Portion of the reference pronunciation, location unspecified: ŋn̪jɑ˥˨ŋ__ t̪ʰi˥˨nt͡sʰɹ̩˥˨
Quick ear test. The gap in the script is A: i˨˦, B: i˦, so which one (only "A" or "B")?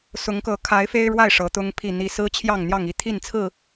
B